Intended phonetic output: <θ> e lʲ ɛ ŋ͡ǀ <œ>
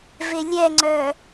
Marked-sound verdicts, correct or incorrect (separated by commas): incorrect, correct